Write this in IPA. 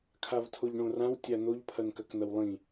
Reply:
kʰavtʰoʎɳõrãw tʲan̪oʎ pʰɐnkɐknɐwlˠĩ

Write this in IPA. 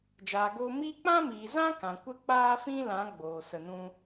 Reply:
d͡ʒaː˨ɡoː˧ miː˦ k͡pã˦miː˨zã˦ kã˨ kʷə˧k͡paː˧fĩ˧ lã˨˦ ɡ͡boː˨ sə˧nũ˦

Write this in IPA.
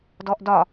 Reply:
dɔʔdɒ

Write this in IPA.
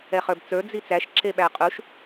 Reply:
ɛχə˞bt͡sə˞ d͡zit͡sæʃ ǁeɓæqʼuʃ

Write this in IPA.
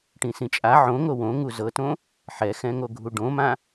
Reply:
ʈĩsĩt͡ʃʼa ʕõ ŋowõŋu zɤtõ | ħɛxɛ̃ŋo ɡʱuɖõmã

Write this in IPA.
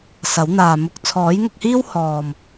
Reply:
sɐ˨˥wn̪aː˨ mʊ˧k̚ t͡sʰɔː˨˥jŋʊ˧k̚hiː˥w hɔː˨m

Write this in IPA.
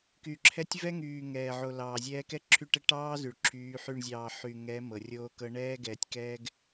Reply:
ky˨ǁʰɛ˦tʲ vɛ˦ŋyː˨ ŋɛː˨ʕo˨lɑː˨zʲɛː˦ kɛ˦ǁʰy˦˨ʈɛ˦ ʈɑː˦ zy˨ɭǁʰyː˨˦ħy˦˨ɳ zʲɑː˨ ħy˨ŋɛ˨˦ mɤ˨rʲoː˦kɤ˦ ɳɛː˦ɡɛː˨tʲkɛː˦ɡ

